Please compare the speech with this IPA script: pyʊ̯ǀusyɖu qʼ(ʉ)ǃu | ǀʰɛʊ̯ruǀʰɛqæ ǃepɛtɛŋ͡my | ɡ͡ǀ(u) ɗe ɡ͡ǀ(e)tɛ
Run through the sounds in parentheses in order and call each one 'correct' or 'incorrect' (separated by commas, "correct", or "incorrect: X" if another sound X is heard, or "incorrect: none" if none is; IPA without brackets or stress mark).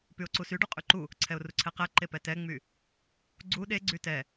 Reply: correct, correct, incorrect: y